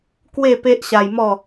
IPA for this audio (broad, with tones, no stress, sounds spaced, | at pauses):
k w e˥˧ p e˦ ʔ ɕ a˧ j m ɔ˥˧